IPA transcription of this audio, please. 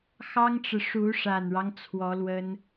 x ɑ˥ ŋ ʈ͡ʂ ɻ̩˨ ʂ u˧˥ ʂ a˨˩ n ɻ ɑ˦ ŋ t͡sʰ w ɔ˧˥ l w ə˥ n

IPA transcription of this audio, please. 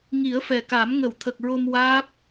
ŋ i˨˩˦ ə̯ f ɛ˨˩ k a˨˩˦ m ŋ ə˨˩˨ w t̪ʰ ə˨˩ k̚ ɹ o˧ m w aː˦˥ p̚

